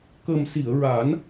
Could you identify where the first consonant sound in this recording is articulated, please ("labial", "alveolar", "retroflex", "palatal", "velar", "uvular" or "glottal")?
velar